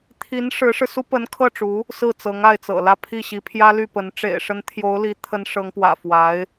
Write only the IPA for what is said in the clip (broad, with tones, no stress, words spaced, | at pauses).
t̪ʰi˧˥n ʂɻ̩˧˥ʂɻ̩˧su˥ pə˧˥nkʰɤ˥˩ʈ͡ʂu˧˥ | sɹ̩˥˩ t͡sɤ˧˥ŋa˥˩ɪ̯t͡sɤ̰˨˩lä˥˧ pʰi˥˩ɕi˧˥pʰjä˥ ly˥˩pə˧˥n ʈ͡ʂḛ˨˩ɪ̯ʂə˧˥nt̪ʰjo˧˥ʊ̯ li˧˥t̪ʰə˧˥n ʂɤ˧˥ŋpwä̰˨˩fwa˧˥ɪ̯